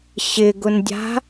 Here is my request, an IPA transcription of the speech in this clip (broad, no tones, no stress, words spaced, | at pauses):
ɕɪɡʊndʲa̤